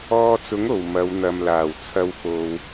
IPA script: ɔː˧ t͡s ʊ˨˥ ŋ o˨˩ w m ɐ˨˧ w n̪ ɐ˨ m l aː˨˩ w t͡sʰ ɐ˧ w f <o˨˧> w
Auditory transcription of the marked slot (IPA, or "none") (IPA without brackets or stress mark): o˨